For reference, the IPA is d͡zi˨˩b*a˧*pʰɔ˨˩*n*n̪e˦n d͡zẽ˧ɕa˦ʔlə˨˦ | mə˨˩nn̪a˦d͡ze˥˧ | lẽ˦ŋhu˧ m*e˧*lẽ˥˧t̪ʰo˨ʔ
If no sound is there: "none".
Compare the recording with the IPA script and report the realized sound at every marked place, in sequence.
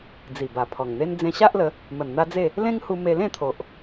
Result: a˨˩, ŋ, e˧

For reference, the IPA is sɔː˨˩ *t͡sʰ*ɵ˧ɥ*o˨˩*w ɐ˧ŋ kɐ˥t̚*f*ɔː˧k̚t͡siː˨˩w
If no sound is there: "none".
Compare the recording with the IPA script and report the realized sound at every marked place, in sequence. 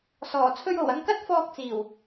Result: t͡sʰ, o˨˩, f

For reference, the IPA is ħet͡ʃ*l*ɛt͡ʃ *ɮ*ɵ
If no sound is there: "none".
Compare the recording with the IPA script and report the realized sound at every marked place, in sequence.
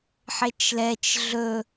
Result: l, ɮ

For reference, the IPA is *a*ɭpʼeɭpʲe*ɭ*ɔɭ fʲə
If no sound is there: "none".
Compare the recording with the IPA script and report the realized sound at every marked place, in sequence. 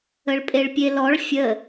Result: ə, l

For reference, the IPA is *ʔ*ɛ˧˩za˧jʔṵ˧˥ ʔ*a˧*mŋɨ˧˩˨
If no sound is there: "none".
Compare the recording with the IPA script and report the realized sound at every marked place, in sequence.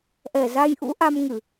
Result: ʔ, a˧

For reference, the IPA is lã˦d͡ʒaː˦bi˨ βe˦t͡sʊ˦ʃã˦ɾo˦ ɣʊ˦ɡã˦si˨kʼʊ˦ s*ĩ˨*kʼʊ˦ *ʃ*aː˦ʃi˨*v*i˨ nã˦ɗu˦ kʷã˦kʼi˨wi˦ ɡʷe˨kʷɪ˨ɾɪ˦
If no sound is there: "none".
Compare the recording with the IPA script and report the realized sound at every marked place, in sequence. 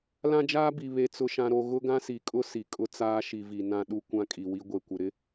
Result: i˨, t͡s, v

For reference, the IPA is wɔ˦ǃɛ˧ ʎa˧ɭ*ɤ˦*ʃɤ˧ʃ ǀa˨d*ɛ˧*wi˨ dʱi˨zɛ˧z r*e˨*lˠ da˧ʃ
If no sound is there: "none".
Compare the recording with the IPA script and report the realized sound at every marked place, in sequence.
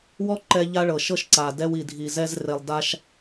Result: ɤ˨, ɛ˧, e˨

